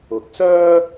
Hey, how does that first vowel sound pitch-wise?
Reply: low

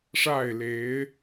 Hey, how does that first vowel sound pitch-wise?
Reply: falling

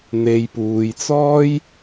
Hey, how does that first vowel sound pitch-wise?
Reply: low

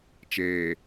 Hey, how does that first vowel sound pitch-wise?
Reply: low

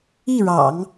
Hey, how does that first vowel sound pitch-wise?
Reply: falling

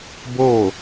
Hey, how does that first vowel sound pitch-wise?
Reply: falling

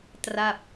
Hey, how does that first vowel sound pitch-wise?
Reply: falling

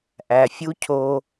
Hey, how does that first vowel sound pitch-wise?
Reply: low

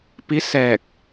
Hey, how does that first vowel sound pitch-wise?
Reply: rising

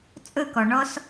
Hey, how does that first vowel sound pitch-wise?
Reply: falling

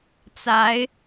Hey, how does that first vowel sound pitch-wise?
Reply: rising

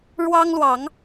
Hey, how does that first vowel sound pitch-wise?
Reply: high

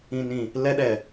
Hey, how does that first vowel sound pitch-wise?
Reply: low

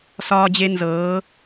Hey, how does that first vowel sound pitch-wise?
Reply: high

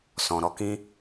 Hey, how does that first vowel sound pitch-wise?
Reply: low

